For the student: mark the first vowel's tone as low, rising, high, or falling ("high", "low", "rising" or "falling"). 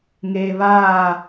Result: low